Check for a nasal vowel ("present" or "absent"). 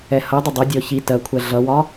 absent